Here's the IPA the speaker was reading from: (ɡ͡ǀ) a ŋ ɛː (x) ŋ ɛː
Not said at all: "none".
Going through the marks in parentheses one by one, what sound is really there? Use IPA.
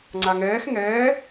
ŋ͡ǀ, x

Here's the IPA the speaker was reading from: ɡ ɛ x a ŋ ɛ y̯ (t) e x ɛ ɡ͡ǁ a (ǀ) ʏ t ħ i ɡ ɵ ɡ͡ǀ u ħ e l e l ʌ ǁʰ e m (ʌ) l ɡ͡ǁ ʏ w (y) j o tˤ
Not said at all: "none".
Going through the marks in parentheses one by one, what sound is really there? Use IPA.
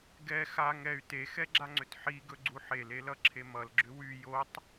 t, ŋ͡ǀ, ʌ, y

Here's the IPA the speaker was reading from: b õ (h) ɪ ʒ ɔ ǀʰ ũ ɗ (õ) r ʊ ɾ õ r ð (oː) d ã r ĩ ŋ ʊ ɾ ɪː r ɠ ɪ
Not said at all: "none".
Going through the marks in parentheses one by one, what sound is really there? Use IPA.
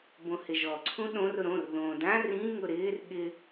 h, õ, õː

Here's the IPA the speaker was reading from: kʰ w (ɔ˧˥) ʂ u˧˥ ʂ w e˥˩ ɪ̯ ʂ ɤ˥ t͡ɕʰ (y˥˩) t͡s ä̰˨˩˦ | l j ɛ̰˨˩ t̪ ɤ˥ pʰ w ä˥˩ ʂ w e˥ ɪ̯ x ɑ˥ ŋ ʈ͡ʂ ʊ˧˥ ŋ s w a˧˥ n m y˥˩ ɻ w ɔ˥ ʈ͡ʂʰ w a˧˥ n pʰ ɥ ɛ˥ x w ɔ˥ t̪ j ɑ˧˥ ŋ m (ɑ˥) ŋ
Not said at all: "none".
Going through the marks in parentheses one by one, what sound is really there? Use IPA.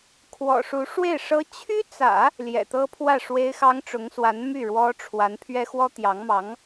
ɔ̰˨˩, y˥, ɑ˧˥

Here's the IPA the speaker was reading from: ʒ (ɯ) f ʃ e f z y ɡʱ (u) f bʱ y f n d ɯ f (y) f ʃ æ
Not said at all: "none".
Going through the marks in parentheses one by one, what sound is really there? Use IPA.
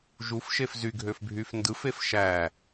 u, ø, e

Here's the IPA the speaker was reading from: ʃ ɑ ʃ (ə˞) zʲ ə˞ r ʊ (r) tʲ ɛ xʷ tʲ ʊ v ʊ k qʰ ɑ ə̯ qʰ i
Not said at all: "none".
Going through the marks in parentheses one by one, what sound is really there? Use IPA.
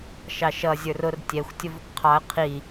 ʌ, r

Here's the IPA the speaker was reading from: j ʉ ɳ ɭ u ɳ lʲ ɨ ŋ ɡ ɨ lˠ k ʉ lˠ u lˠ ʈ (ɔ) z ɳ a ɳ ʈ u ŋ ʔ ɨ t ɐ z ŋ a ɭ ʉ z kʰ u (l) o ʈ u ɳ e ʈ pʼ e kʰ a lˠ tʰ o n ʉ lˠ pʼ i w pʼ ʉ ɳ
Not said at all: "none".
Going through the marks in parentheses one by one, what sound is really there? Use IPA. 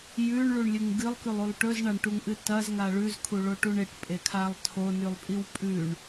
ɵ, ɭ

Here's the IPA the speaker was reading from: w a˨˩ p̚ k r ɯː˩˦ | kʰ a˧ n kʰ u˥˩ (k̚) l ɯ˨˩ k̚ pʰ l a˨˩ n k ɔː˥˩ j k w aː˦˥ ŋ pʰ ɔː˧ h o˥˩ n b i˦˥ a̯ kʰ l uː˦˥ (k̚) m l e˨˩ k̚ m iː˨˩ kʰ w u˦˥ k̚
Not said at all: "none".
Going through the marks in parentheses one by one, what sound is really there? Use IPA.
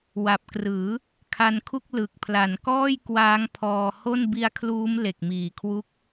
k̚, none

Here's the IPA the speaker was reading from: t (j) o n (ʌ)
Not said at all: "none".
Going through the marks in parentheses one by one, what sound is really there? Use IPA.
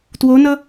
w, ʌ

